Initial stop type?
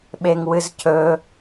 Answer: implosive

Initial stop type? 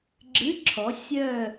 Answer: click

